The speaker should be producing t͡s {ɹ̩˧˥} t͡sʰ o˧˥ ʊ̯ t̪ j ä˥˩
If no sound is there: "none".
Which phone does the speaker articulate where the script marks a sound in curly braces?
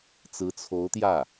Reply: ɹ̩˧˥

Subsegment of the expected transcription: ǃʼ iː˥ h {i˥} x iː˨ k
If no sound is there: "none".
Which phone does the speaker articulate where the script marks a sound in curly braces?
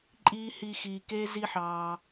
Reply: i˦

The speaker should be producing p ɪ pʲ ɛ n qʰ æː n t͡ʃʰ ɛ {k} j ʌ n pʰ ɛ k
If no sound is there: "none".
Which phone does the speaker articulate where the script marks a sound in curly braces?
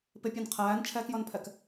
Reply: k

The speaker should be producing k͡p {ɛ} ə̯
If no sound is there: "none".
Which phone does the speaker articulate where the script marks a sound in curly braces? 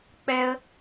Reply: ɛ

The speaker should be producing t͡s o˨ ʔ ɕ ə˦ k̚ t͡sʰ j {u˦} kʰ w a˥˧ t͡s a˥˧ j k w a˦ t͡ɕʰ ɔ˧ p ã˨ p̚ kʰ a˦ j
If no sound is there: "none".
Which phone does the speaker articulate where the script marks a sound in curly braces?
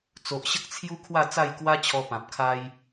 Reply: u˦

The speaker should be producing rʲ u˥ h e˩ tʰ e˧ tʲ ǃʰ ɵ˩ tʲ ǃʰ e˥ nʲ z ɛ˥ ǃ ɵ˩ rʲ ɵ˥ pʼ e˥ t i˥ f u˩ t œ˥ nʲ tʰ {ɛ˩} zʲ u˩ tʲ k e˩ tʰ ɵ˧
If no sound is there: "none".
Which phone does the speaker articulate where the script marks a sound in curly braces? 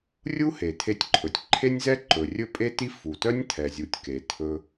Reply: ɛ˩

